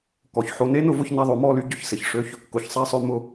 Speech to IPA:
k ɔ˧ ç ħ o˧ n e˦ n ʊ˨˦ v ʊ˧ ç n a˧ ðˤ o˨˦ m ɔ˧ l y˧ ɟ ʊ˨ ç s ɪ˨ ç ʂ ø˦ ç | k ʊ˨˦ ç sˤ a˦ sˤ ø˦ m ʊ˦

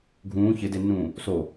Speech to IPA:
ɡʱ ũː ç ɪ d e nː ũː | s o

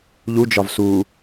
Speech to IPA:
ʎ u d͡ʒ ɒ v s u

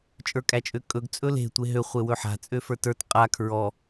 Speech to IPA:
t͡ʃʼ ə˞ kʼ æ t͡ʃʼ ø kʼ ɵ ɡ t͡sʼ ɵ l e̤ tʷ e ɦ ø χʷ e w ɵ ħ a̤ t͡sʼ ø f ə˞ t ə˞ t qʼ a kʰ ɹ ɔ

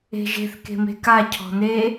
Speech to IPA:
e̤ ʒ e̤ θ k e̤ m e̤ k a cʰ ɔ̤ n e

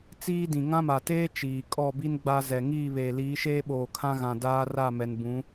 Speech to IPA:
t͡s iː˦ d ĩ˨ ŋ ã˦ m a˨ t eː˦ t͡ʃ iː˨ kʼ ɔ˦˨ b i˦ n ɡ͡b a˦ z ɛ˨ ŋ iː˦˨ β eː˨ l iː˨˦ ʃ eː˦ ɓ oː˨ kʰ ã˦ ɣ ã˨ d aː˦ r a˦˨ m ɛ˨ n b ũ˨˦

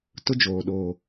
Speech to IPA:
t ʊ˦ d͡ʒ oː˨ ɗ oː˨

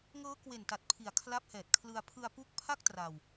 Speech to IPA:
ŋ ɤː˦˥ k w e˨˩ n t a˨˩ t̚ pʰ i˨˩ a̯ kʰ l a˦˥ p̚ h ɛː˨˩ t̚ kʰ l ɯ˧ a̯ pʰ ɯ˧ a̯ p u˦˥ k̚ pʰ a˥˩ k̚ t r a˧ w

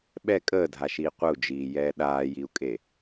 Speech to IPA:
ɓ ɛ kʼ əː dʱ a ʃ iː qʷ ə u̯ d͡ʒ iː j ɛː ɗ aː j i u̯ kʼ e

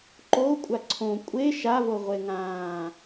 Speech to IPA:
ǃ o kʷʼ a ǀʰ õ kʷʼ e ʃ a v o ʁʷ e ŋ ãː

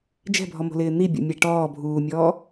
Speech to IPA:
d͡ʒ ɛ̤ bʱ ɔ m o̤ l ɪː n̪ i bʲ o̰ mʲ a ʈ ɔː bʱ uː mʲ ɔː

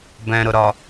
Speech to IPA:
b ɛ̃ ɾ ʊ ɾ ɒ

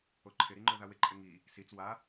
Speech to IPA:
o ǃʰ ɪ ɾ i ŋ͡ǃ o ð a w ɪ ǃʼ ɪ ŋ i | s i t͡s w a

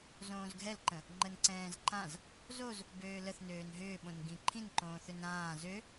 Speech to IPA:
z õː z ɡʱ ɛ l ǃ ə̃ | ŋ͡ǃ ə n ǀ ɛ̃ː z ǃ ã z | z o z | b øː l ə θ n øː n ɦ ʏː ɓ õ n ɡ ĩ ǃʰ ĩ n ǃ õː θ ʏ n ɾ ãː z ø

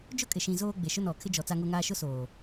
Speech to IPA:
d͡ʒ ʊ˦˨ kʼ ɪ˨ ʃ ĩ˨ z oː˦ ɡ͡b e˨ ʃ ʊ˦ n ɔ˨ kʰ ɪ˦ d͡ʒ ɔ˨ t͡s a˦ ŋ o˦ ŋ aː˦ ʃ ʊ˦ s oː˨

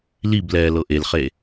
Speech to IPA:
l i b l ɛː l ɤ ʔ e l χ e

